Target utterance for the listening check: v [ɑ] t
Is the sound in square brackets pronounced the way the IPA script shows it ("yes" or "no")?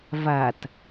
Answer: no